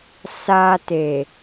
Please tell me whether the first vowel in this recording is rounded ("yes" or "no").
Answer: no